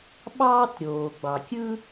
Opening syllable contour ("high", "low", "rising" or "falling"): high